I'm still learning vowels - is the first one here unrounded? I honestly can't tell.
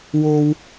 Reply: no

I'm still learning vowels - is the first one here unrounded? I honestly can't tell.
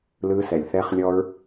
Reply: yes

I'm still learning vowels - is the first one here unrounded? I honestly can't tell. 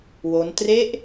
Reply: no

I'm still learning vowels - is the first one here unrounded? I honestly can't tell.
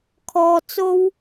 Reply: no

